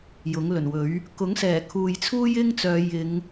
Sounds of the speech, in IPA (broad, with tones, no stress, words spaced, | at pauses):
jʊ˨˥ŋlɵ˨˩nwɵ˨˥ɥ | kʊ˨˥ŋsɛː˨˩ kʰuː˨jt͡sʰuː˥jɪ˥ŋt͡sœː˨˧ jɪ˨˧ŋ